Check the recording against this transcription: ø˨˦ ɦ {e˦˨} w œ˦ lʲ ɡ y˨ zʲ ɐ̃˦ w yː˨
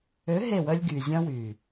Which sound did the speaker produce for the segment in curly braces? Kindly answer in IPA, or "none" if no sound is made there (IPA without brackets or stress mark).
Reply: e˦˨